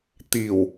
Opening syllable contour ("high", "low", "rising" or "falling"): low